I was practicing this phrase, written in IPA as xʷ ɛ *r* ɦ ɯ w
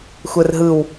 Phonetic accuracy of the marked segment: correct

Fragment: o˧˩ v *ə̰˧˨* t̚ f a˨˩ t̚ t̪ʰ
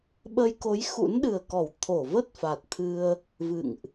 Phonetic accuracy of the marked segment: incorrect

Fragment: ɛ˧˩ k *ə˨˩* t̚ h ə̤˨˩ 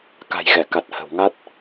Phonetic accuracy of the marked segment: incorrect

